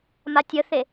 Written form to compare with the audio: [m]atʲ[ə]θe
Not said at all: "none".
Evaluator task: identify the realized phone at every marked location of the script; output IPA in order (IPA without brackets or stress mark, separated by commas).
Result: m, ə